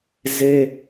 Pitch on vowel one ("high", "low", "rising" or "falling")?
high